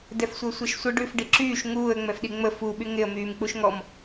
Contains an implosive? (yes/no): yes